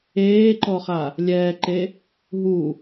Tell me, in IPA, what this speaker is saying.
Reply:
eːǃɔχa | lʲɛːǃe | ɦu

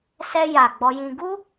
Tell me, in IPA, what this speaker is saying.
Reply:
sɛ˧ja˨ ɡ͡bɔ˧jĩ˧ ɡu˦

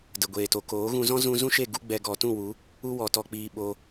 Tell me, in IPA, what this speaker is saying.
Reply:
də˨ɡʷeː˨to˨ koː˨˦ɣũ˧ zɔ̃˦zũ˧zũ˦ʃe˦˨ ɡu˦ɡ͡bɛ˧ ɡɔ˨tũ˦˨wu˨˦ | u˧wɔ˨tɔ˨k͡piː˨ ɓo˧

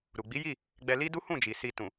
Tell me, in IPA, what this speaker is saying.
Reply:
ɾu˨ɡ͡bi˨˦ji˦˨ | ɡ͡bɛ˧ li˦ du˦hũ˦˨d͡ʒi˨ si˧ tũ˨

